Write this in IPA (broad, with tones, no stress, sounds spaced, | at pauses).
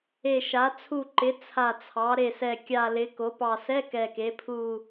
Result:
e˨˩ ʃ a˩˧ t͡sʰ u˨˩ ǃ ɪ˩˧ t͡sʰ a˨˩ t͡sʰ ɑ˩˧ ɾ e˨˩ s ɛ˨˩ kʲ a˨˩ l ɪ˩˧ k o˩˧ p ɑ˨˩ s ɛ˧˥˧ k ɛ˨˩ k e˩˧ pʰ u˨˩